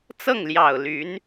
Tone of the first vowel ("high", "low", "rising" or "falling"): falling